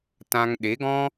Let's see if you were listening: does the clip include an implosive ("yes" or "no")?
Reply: yes